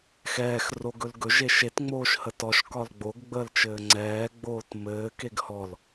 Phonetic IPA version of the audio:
x ɛː x r o ɡ ɵ l ɡ ɵ ʒ e ʃ e t ŋ͡m oː ʃ h ə t ɔ ʃ k ɒ l ɡ͡b o ɡ ɡ͡b əː l t͡ʃ ɘː ŋ͡ǀ ɛː ɡ͡b oː t m ɘː k e ɡ h ɔ l

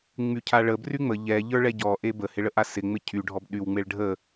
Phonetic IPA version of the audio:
ŋ͡m y cʰ a ɭ ə b r y ŋ͡m ə ʎ ɛ ʎ ə˞ ɭ ɛ ɟ ɔ ʔ e b ə h ɪ ɭ ə ʔ a s ɪ ŋ͡m ɪ cʰ y ɖʱ ɔ b ɗ y w ŋ͡m e ɭ ɖʱ ə

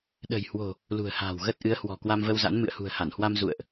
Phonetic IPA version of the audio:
ɗ ə̤˨˩ j h w o̤˨˩ | l ṳ˨˩ ə̯ h a̤ː˨˩ w ɣ ə˦˥ t̚ ʔ ɨ˨˦ ə̯ h w ɔ̤˨˩ k w a˧ m v ə˧ w z a̰˧˥ n m ɨ̰˧˨ ə̯ h ṳ˨˩ ə̯ h a˧˩ n h w a˧ m z ṵ˧˨ ə̯ ʔ

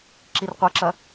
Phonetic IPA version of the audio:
ǁ i r qʷ ɐ ǁ ɐ

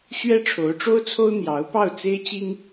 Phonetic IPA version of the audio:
ɕ ɥ ɛ˥ ʈ͡ʂʰ o˧˥ ʊ̯ ʈ͡ʂ o˥ ʊ̯ t͡sʰ o˥ ʊ̯ n̪ j ɑ˧˥ ʊ̯ p ɑ˥˩ ʊ̯ t͡s e˥ ɪ̯ t͡ɕ i˥ ŋ

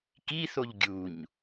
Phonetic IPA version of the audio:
k i θ o ʎ ɡʲ u ɲ

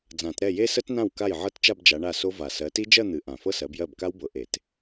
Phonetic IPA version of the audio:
d͡z ã˨˩˦ t ɾ ɛ˥˩ j e˦˥ s ə˦˥ t n ã˥˩ w k a˥˩ j ʕ ɤ˦˥ t t͡ʃ a˥˧ b d͡ʒ a˨˦ ɳ a˥˩ s o˦˥ v a˨˩ s ɜ˨˦ t i˦˥ d͡ʒ ɜ˥˧ n̪ ɨ˨˦ ʔ ã˨˩ f ɤ˥˧ s ɜ˨˦ b j ɜ˥˩ b k a˦˥ w b ɤ˨˦ ʔ e˨˩˦ t

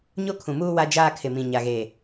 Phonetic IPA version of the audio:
ɲ o˦ kʰ ũ˨ m uː˦ w a˦ d͡ʒ aː˦ kʰ ɪ˨ m ĩ˨ ɲ a˨ ɣ eː˨

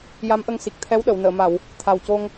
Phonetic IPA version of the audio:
j a˧˥ m ʔ ə˧ ŋ s i˨˩ k̚ t̪ʰ ɛ˧˥ w ɗ ə˨˩˨ w n əː˨˩˨ m a˨˩˨ w | t̪ʰ a˨˩ w c o˧ ŋ

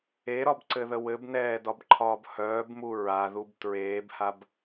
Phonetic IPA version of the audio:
e ɾ ɒ b ǀ ɘ ð ə w ɘ b n ɛː d ɒ b ǃʰ ɒː b h œː b m u ɹ a ð u b t ɹ eː b h a b

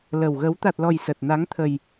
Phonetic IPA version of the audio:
l ə˨˩ w ɣ ə˨˦ w t̪ a˨˩ t̚ l ɔ˨˩ j s ə˨˩ t̚ n a˨˦ ŋ t̪ʰ ə˨˩ j

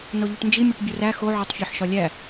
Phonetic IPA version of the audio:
n o ʎ u ʈ n d͡ʒ i mʲ o ʈ bʲ o r æ x o ʕ o tˤ fʲ ɒ ħ ʃ ɒ lʲ æ

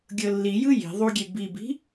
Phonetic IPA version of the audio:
ɡʲ ɤ lː i j ɯ j i̤ ðˤ u ɡʲ e b i b i̤

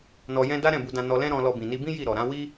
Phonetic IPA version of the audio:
n ɔ˨ j ɛ̃˧ d a˦ ɾ ɛ̃˦˨ b u˧ d ã˧ n ɔ˧ l ɛ̃˦ ɾ ɔ̃˧ l ɔ˧ b ĩ˨ n i˧ b ĩ˦ j i˦˨ ɾ ɔ˨ ɾ ã˨˦ w i˦

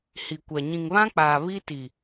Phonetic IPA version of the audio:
h i˨ kʷ a˨ ɲ ĩ˨ ŋ β ã˦ k͡p aː˨ β i˦ t i˨

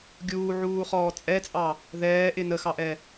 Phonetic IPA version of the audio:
ɡʲ uː ʕ uː χ ɔː t͡sʼ ɛ t͡sʼ ɑ | ð ɛː ʔ ɪ n ə x ɑ ʔ ɛ

